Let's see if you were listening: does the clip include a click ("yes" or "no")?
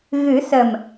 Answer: no